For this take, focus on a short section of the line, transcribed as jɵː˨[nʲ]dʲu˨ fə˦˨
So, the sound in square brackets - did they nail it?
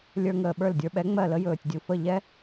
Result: no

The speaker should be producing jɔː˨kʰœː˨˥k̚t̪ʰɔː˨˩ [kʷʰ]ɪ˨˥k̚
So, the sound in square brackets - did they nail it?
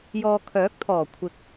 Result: yes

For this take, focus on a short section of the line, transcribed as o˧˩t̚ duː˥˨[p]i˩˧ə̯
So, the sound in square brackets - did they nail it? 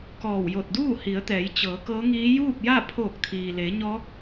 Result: no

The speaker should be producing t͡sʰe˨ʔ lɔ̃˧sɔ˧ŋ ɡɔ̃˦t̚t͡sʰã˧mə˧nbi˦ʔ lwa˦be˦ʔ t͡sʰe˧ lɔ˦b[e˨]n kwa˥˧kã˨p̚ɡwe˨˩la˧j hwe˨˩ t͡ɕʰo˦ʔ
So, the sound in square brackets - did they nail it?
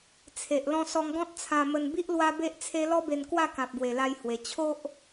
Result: no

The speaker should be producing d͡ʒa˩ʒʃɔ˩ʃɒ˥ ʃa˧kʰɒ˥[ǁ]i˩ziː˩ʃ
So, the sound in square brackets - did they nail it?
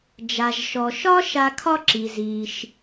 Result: yes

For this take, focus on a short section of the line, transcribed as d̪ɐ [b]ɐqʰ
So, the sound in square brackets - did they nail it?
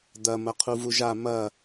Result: no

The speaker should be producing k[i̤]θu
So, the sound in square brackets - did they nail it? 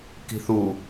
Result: yes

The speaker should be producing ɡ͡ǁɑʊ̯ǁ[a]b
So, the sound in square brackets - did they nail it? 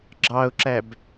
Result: no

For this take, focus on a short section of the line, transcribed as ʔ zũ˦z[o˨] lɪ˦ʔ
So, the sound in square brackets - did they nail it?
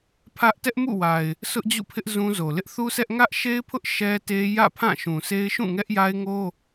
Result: yes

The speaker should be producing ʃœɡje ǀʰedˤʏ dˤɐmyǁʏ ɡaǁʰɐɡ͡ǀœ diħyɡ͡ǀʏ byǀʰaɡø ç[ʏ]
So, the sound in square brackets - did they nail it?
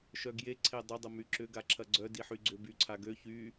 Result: no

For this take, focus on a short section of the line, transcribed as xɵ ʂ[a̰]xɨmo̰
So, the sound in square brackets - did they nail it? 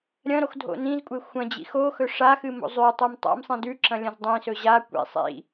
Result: no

